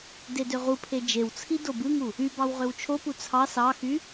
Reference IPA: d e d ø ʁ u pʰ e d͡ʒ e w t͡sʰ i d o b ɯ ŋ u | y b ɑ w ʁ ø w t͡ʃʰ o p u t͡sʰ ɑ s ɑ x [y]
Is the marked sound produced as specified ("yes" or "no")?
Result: yes